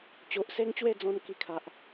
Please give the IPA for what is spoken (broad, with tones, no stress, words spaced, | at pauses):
t͡ɕo˨ʔse˦ŋt͡ɕwe˥˧d͡zɔ̃˧n ki˧kʰa˨ʔ